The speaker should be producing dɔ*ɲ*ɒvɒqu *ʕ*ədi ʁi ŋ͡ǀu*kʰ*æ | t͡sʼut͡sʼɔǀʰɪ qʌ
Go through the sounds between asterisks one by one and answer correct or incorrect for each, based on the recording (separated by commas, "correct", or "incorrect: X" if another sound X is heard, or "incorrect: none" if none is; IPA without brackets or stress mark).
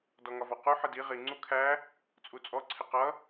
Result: incorrect: ŋ, incorrect: ħ, correct